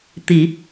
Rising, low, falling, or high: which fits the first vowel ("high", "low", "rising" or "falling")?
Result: low